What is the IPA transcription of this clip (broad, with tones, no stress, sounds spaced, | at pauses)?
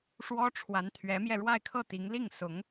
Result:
ʂ w ɔ˥ ʈ͡ʂʰ w a˧˥ n t̪ʰ ɥ ɛ˧˥ m j ɛ˧ ɻ w a˥˧ ɪ̯ kʰ ɤ˥˩ t̪ i˧˥ ŋ l i˥˩ ŋ s ʊ˧˥ ŋ